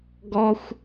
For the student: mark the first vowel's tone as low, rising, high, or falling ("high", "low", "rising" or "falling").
high